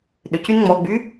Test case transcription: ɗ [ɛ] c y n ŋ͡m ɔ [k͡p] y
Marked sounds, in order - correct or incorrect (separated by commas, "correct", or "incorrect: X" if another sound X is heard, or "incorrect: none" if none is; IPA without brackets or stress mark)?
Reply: incorrect: ʏ, incorrect: ɡ͡b